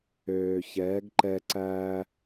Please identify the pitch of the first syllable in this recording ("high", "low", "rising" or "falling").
low